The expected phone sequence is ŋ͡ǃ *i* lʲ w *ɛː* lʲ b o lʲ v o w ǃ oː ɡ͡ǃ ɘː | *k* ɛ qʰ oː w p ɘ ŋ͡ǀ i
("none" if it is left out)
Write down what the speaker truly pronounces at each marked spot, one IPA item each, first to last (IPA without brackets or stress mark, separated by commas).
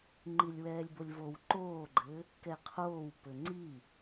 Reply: i, ɛː, k